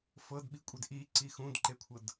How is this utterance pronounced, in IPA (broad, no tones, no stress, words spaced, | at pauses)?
fɤdɓikʷʼed ʔiǀi xũdǃekʷʰɤd